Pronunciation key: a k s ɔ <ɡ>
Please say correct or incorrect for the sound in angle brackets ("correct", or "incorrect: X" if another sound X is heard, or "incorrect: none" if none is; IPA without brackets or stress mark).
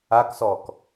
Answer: incorrect: k